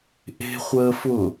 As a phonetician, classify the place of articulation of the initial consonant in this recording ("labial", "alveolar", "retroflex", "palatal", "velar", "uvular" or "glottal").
glottal